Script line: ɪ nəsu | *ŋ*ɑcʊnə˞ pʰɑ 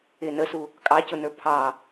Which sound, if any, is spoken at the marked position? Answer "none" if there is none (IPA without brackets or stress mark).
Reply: kʼ